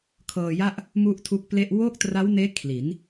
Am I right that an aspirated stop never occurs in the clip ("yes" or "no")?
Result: no